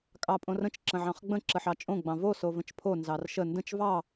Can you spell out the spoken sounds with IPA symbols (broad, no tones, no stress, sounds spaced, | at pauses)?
kʼ ɑ pʼ õ r ə̃ t͡ʃ ǁ ə̃ ʕ ɑ̃ χ ɡ͡b ə̃ ǁ ə ħ ɑ t͡ʃʼ õ ɡ͡b ɑ̃ v o s o v ə̃ t͡ʃ pʰ o n z ɑ r ʃ ə n d ə̃ t͡ʃ v ɑ